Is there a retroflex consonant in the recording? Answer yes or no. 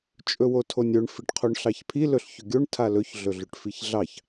yes